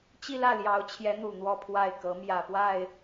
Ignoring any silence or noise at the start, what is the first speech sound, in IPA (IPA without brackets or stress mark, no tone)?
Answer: t͡ɕ